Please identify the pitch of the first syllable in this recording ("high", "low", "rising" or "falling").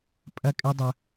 high